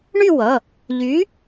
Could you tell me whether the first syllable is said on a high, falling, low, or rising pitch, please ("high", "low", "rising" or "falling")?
falling